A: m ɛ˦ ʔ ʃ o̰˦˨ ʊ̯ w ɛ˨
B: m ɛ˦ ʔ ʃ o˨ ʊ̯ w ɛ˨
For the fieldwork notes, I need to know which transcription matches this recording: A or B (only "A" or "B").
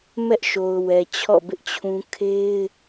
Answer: B